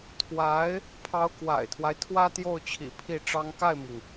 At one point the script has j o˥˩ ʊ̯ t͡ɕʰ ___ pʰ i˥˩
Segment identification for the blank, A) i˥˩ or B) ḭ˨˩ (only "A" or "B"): B